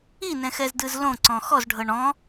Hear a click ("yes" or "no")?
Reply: yes